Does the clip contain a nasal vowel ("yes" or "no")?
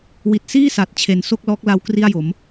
no